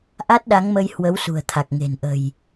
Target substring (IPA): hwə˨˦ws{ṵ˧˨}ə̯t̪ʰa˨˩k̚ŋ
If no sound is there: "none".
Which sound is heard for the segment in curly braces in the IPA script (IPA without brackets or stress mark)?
ṳ˨˩